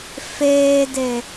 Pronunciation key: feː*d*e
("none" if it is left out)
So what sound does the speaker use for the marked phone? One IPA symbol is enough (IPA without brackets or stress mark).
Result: d